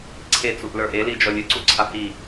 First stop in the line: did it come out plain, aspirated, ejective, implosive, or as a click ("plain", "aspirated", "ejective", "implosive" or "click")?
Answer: click